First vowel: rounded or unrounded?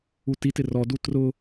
rounded